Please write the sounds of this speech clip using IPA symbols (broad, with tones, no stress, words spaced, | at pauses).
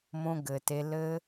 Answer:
mõ˧ɡɘ˨te˧ lɘ˧